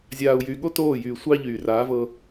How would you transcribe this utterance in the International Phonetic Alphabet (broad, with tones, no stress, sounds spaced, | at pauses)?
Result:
zʲ aː˨ u̯ j y˨ ɠ o˦ t oː˦˨ j yː˨ sʷ ɑ˦ ʎ yː˨ r aː˨˦ v ɤ˦